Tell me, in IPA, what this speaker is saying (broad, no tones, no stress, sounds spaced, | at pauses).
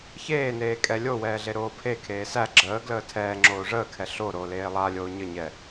ç eː n eː kʼ ɛ lʲ o w ɛː ɮ e ɾ oː pʰ e kʰ eː s æ ɡ͡ǁ əː ɡ l əː tʰ ɛː ŋ͡ǁ oː ʐ əː kʰ ɛ ɬ o ɾ oː l eː lˠ a lʲ oː ɲ ə ɲ ɛ